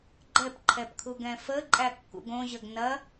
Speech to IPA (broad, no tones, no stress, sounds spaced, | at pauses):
ɡ͡ǃ ɛ p ǃʰ ɛ p kʰ u ɡ ɛ̃ f ə ǃʼ æ kː ṵ ɡ õ ʑ ə ɡ n ɐ